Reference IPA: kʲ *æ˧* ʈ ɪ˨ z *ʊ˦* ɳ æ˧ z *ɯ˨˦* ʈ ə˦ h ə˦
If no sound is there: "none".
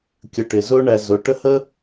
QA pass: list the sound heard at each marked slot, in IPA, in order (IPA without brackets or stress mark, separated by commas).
ə˧, ʊ˦, ʊ˨˦